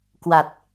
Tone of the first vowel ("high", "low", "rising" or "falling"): low